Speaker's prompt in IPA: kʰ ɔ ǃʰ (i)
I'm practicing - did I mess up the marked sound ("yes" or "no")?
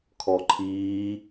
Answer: yes